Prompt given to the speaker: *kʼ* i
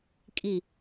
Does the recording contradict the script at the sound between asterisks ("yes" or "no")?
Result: no